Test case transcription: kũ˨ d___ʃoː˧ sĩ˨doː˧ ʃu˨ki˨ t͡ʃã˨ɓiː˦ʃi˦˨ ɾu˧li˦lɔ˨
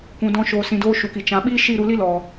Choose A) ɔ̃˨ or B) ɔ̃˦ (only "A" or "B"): B